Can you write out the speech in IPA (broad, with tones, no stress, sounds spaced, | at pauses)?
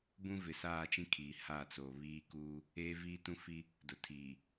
b ũ˦ v ɪ˨ s aː˦˨ t͡ʃ ĩ˦ kʰ iː˨ h aː˦˨ t͡s oː˨ β iː˦ k uː˦ | eː˦ v iː˦ t ũ˦ f i˦ | d ʊ˨ tʰ iː˨